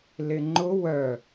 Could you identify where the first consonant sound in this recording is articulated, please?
alveolar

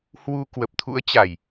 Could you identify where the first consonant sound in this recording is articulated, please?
glottal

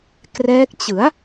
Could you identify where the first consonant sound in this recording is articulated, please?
velar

